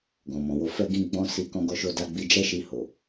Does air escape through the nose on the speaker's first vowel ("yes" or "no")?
yes